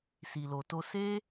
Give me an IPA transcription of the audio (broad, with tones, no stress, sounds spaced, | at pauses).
s i˨ l o˨ t o˧ s e˦